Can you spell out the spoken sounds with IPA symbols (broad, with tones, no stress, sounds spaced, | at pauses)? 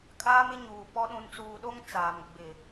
kʼ aː˦ m ɪ˦ ɲ uː˨ p ɔ˦ ɗ ũ˨ n t͡s uː˨ ɗ o˦ ŋ t͡s aː˨ m ɡ͡b ɪ˨